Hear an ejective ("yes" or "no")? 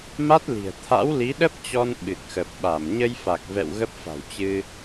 no